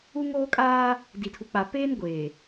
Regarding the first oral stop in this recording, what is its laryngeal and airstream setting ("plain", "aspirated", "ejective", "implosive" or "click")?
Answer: ejective